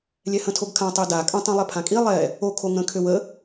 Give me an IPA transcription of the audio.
lʲ ɛ h ə̃ tʰ o ɡ kʰ ã tˤ e d a kʼ ə̃ tˤ ĩ lˠ e pʰ ã kʼ i lˠ ɛ | o kʰ o ŋ ə̃ kʰ ø w ə

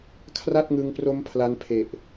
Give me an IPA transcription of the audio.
kʰ r a˥˩ t̚ ŋ ɯ˧ ŋ p r o˦˥ m pʰ l a˦˥ n pʰ e˨˩ ʔ

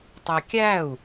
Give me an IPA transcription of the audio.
tˤ æ kʲ æ u̯

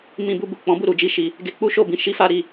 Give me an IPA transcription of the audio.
m ĩ˧ b u˧ b u˨ k͡p ɔ̃˨˦ b u˦˨ ɾ u˨˦ d͡ʒ i˦ ʃ i˧ | ɡ e˧ k͡p u˦ ʃ o˦˨ b ĩ˧ ʃ i˦ f a˦ ɾ i˦˨

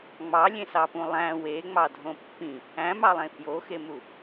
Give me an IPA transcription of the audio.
ŋ͡m ɑ lʲ ẽ s ɑ p ũ lˠ æ̃ w e ŋ͡m ɑ dʱ õ pː ĩ | æ̃ m ɑ lˠ ẽ f j o x e m u

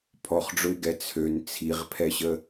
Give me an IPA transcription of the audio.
pʰ ɔ χ ɖ͡ʐ ʊ ɪ̯ ɡ ɛ t͡sʰ ø n t͡sʰ i ʁ pʰ ɛ ɕ ə

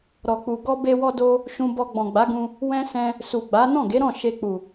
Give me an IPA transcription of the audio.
ɾ ɔ˨ k͡p u˨ ɡ ɔ˧ b e˧ w ɔ˧ d o˧ | ʃ ũ˧ b ɔ˧ ɡ͡b ɔ̃˨ ɡ͡b a˨˦ ɡ ũ˧ | w ɛ̃˦ s ɛ̃˧ | s u˨ ɡ͡b a˨˦ n ɔ̃˦˨ ɡ e˨˦ ɾ ɔ̃˦˨ ʃ e˧ k͡p u˨

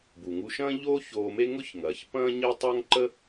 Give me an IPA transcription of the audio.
b u˩ ŋ u˧ ʃ ɐ̃ː˥ ʎ oː˥ ç oː˧ m e˥ ŋ ʊ˥ ç ŋ ɐː˩ ç p ɐ̃ː˥ ɲ ɪː˥ tˤ ɐː˥ ŋ ǃ ə˥

